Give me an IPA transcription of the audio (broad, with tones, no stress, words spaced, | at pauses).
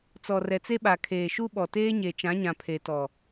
t͡sɔ˨rɛ˨t͡se˦ɓa˨ kʰeː˨ʃu˦ɓɔ˨teː˦ ɲe˨t͡ʃã˨˦ɲã˨ pʰe˨tɔ˨